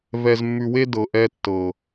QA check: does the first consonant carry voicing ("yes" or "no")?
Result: yes